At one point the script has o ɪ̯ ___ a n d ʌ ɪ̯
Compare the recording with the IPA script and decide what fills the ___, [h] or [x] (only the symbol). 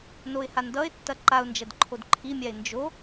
h